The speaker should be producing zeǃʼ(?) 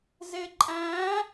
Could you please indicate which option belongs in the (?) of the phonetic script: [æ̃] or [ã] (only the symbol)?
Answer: æ̃